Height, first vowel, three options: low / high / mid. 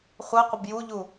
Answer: mid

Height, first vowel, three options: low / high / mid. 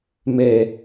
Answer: mid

